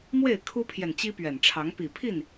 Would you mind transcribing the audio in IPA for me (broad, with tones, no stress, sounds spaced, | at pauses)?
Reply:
m w e˥˨ ɪ̯ kʰ u˦ pʰ j ɛ˨ n t͡ɕ i˦ p ɥ ɛ˨˩ n ʈ͡ʂʰ ɑ˨˦ ŋ p i˨˩ pʰ i˥˨ n